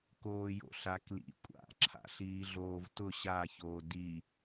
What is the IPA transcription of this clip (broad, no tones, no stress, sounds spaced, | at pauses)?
k oː j o̰ ɬ a k l ḭ kʷʼ a̰ ǁʰ a̰ ɬ iː ɮ oː v t ʊ ɕ a ç oː d i